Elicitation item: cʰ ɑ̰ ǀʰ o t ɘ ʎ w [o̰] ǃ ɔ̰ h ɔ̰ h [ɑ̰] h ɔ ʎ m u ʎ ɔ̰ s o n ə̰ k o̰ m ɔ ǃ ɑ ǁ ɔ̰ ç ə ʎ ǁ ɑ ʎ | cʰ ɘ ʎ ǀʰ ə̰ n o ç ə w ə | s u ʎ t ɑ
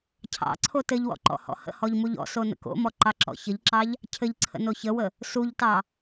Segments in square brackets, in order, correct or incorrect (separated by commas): incorrect, incorrect